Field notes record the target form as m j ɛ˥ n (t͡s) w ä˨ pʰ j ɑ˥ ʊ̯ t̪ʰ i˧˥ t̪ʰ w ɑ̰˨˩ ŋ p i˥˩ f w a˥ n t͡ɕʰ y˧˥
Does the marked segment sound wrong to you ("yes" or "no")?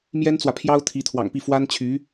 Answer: no